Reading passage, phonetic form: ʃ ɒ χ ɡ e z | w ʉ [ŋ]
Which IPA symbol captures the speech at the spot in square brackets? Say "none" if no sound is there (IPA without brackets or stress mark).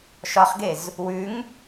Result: ŋ